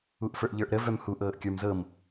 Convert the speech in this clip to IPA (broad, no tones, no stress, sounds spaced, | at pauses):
u ʔ f ə˞ ʔ ʎ ə˞ ʔ ɾ ə v œ m h u ʔ ɤː ʔ kʲ ə˞ m z ɤ m